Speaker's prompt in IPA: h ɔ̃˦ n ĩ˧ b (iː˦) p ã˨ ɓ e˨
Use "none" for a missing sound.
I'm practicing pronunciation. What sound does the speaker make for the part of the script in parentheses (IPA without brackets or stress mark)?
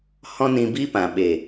i˦